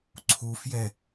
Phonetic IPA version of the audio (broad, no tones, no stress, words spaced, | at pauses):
ǀʰufjɛ